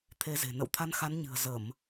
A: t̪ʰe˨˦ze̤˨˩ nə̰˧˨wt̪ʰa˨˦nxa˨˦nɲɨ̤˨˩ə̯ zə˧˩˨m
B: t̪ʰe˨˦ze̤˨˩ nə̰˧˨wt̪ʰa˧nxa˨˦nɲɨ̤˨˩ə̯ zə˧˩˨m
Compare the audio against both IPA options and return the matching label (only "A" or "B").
B